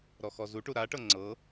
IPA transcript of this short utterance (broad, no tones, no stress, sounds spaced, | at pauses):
ɾ ɔ x ɔ z u ʈ u ɾ a ʈ ɤ ŋ͡ǀ ɤ